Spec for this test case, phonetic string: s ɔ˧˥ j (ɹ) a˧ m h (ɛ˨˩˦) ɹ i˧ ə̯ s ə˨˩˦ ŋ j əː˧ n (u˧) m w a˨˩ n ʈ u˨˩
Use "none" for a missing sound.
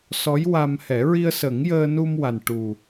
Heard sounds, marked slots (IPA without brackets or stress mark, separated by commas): w, ɛ˨˩˦, u˧